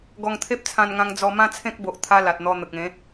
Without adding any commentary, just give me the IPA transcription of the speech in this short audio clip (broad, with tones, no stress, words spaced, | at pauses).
ɡɔ˧ŋt̪ʰe˦p̚t͡sʰã˧nŋã˧ŋ d͡zɔ˧mã˦t͡sʰẽ˦k̚ bo˨ʔt̪ʰa˧ la˨t̚n̪ɔ˧ n̪ə˨k̚ẽ˨˦